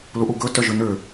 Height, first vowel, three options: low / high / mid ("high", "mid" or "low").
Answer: high